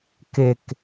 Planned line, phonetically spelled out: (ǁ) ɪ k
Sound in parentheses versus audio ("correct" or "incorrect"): incorrect